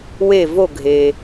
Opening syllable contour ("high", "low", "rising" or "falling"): falling